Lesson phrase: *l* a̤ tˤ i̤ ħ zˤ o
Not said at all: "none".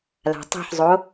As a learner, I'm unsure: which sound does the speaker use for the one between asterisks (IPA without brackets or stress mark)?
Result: l